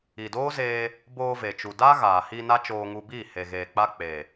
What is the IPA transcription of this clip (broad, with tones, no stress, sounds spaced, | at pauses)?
i˨ d oː˦ z eː˧ | b oː˧ v e˨ t͡ʃ u˨ d a˦ ɣ aː˨ h i˧ n a˦ t͡ʃ oː˧ ŋ u˧ b iː˦˨ h e˨ ɣ eː˨ k͡p a˧ k͡p e˨